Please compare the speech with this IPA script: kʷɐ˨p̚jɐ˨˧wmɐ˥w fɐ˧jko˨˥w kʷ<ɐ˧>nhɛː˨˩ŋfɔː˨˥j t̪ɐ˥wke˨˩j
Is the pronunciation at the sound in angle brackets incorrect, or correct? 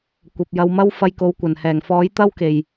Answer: incorrect: ɐ˨˩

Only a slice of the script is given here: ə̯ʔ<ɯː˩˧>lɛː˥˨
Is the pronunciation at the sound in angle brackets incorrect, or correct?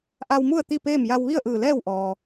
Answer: incorrect: ɯː˧˩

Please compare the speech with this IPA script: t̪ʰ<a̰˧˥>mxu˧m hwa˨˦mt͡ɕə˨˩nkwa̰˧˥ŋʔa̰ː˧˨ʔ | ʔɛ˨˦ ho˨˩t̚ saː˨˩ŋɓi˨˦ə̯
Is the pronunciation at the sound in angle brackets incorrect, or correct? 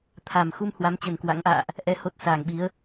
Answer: incorrect: a˨˩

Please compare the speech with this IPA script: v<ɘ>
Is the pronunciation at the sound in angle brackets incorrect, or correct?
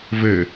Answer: correct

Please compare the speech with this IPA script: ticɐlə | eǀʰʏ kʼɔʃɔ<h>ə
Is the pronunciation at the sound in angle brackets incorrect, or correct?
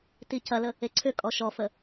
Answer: incorrect: f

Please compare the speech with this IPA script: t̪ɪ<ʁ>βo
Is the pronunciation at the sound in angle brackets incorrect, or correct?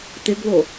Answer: incorrect: ɡ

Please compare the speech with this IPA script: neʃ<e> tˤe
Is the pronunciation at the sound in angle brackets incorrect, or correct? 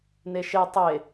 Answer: correct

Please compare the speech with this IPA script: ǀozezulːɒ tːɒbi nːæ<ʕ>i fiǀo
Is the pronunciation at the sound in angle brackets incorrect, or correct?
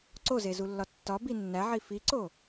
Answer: correct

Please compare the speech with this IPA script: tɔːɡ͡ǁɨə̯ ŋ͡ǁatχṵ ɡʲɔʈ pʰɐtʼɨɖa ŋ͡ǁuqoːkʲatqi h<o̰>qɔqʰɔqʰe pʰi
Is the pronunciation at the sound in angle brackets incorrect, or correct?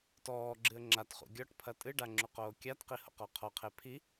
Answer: correct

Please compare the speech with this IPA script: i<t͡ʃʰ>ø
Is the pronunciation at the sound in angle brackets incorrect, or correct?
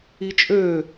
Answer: incorrect: t͡ʃʼ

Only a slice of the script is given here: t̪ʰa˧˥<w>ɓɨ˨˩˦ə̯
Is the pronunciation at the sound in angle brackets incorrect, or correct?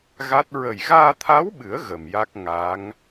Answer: correct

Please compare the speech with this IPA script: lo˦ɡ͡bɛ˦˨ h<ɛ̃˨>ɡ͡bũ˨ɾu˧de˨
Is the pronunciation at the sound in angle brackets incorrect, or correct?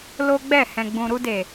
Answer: correct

